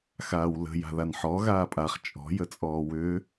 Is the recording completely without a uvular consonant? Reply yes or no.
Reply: no